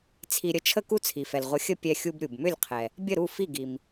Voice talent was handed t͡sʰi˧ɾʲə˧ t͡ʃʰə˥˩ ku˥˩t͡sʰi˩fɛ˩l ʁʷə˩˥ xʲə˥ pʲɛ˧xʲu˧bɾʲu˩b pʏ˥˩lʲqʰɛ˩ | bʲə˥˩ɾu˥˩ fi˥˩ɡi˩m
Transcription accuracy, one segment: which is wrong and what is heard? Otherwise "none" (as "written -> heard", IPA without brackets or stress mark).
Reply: p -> m